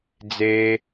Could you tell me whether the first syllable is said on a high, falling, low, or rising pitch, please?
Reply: low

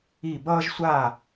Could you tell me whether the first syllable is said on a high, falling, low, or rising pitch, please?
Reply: falling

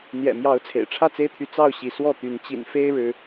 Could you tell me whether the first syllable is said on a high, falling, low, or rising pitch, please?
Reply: low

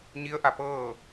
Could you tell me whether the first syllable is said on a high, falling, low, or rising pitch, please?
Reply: rising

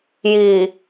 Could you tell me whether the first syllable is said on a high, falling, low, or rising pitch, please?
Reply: low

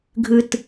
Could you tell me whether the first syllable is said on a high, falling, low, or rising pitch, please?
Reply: low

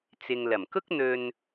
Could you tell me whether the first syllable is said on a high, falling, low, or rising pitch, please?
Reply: low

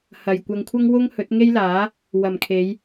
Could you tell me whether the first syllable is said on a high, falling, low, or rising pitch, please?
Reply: low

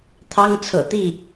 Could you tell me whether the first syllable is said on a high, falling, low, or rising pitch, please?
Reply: high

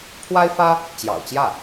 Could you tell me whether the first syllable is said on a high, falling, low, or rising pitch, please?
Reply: high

